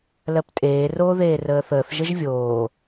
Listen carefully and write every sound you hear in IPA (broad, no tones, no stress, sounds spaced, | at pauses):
l ɜ p tʼ eː r oː ð eː r əː θ əː θ ʒ ə ʒ vʲ oː